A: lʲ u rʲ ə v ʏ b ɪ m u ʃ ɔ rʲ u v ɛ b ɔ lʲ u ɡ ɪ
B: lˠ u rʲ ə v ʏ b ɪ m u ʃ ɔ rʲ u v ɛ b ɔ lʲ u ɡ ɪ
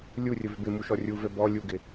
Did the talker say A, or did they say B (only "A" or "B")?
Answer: A